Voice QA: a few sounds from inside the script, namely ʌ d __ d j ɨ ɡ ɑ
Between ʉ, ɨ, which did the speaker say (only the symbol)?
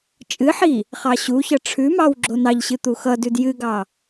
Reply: ʉ